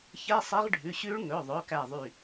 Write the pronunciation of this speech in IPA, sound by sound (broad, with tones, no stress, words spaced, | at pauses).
çɛ˧˥˧sˤe˦˥ʁɖʱʉ˩˧˩ɕʉ˦˥ɭ ŋɵ˩˧˩ðˤɵ˩˧˩kæ˧˩ðˤy˧˩